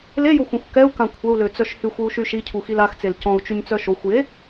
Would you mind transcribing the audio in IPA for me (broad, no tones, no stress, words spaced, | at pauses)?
lejoxʷœ̃xʷ kɛu̯kã kʷʰəu̯løt͡sœʃ hyxʷyu̯ʃy ʃicʰuxil axt͡sel cɔ̃u̯t͡ʃyɲt͡sœ ʃoxʷje